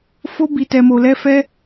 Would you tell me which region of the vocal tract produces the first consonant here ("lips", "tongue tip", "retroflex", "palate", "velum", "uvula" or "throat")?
lips